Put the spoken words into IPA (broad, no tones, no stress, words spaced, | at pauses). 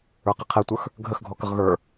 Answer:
ə˞qiqʰɛtʷə˞x | ɡʱəxɡʱɔkəʁ ɣə˞